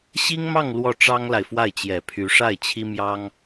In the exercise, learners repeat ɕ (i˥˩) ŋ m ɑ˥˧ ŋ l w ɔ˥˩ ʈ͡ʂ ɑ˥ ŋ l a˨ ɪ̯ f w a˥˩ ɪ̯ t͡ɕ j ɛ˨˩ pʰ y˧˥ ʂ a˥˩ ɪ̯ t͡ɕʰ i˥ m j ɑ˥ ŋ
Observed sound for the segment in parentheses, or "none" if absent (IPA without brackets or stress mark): i˥